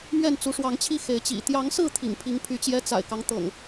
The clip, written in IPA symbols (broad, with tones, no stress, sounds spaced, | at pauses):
m ɥ ɛ˥˨ n t͡s u˨˦ ʂ w ɑ˨˦ ŋ t͡ɕʰ i˥˨ x e˨˦ ɪ̯ t͡ɕ ḭ˨˩ t̪ j ɑ˨˦ ŋ s ɹ̩˥˨ t̪ʰ ḭ˨˩ ŋ pʰ i˨˦ ŋ pʰ y˨˦ t͡ɕ j ɛ˦ t͡s a̰˨˩ ɪ̯ k ɑ˦ ŋ t̪ ɤ̰˨˩ ŋ